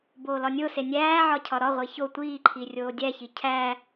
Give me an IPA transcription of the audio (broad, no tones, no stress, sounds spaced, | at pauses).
b oː l ɒ nʲ o s e nʲ æː ʕ ɒ cʰ ɒ ɾ ɒ ʁʷ i ç o tʷ iː ǃʰ i rʲ oː dʲ æ ç i cʰ æː